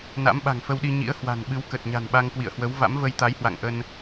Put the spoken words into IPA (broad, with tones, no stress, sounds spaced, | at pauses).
n a̰˧˥ m ɓ a̤˨˩ ŋ f ə˧ w ɗ i˧ ɲ ḭ˧˥ ə̯ h w a̤˨˩ n ɓ ɨ˨˦ w k ə˨˩ t̚ ɲ a̤˨˩ n ɓ a˧ ŋ k w ḭ˧˨ ə̯ h w ə˨˦ w v a̰˧˥ m v ə˧ j t̪ a˨˦ j h w a̰˧˨ ŋ ʔ ə˧ n